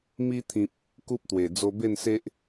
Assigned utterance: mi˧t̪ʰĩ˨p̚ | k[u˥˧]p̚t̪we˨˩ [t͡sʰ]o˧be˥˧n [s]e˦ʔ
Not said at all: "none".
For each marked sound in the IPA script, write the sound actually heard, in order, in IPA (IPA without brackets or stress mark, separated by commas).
u˦, d͡z, s